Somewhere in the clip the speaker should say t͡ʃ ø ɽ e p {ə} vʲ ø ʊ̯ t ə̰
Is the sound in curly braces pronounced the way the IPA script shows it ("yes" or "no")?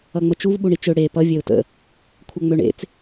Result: no